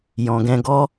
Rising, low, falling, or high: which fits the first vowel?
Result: low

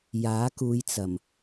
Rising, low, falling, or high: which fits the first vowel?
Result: rising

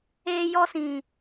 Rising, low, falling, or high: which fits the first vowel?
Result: high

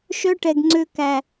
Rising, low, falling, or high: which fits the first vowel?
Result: high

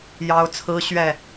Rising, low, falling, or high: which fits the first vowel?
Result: high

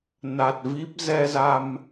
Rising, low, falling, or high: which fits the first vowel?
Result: low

